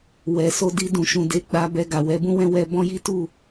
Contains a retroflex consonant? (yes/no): no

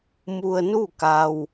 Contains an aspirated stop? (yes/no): no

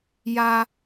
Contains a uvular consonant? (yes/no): no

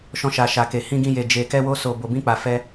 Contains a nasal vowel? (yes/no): yes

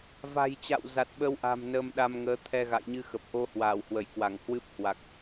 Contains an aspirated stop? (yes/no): yes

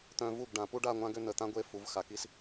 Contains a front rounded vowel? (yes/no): yes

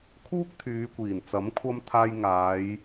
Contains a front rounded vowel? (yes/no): yes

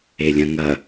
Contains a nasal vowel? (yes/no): yes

